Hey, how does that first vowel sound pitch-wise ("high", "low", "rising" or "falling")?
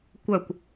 falling